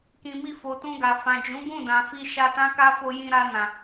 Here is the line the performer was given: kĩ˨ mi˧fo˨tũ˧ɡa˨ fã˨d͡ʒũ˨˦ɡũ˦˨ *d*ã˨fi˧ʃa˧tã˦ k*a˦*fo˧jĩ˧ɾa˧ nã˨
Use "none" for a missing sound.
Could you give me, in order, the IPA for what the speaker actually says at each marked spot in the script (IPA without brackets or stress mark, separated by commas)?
d, a˦